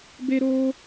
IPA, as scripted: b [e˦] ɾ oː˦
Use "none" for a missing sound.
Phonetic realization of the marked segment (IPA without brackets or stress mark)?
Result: e˦